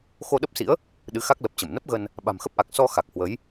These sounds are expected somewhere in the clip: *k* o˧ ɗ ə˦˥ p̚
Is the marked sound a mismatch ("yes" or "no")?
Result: yes